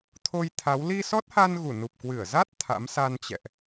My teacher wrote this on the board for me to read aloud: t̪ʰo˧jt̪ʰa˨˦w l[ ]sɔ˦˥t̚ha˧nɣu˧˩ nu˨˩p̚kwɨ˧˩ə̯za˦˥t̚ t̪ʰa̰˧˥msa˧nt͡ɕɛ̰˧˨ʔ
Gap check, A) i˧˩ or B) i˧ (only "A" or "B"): B